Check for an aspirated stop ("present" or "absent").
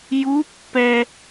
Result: absent